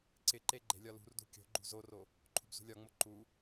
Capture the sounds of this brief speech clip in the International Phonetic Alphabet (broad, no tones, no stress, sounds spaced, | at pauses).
ǀ ɪ ǃ e ɡ͡ǃ e̤ lʲ ɒ l ṳ r d ṳ kʲ o̤ ɡ͡ǃ ṳ z o r o | ǃʰ ṳ b z ṳ lʲ ɒ ŋ͡m o ǃ u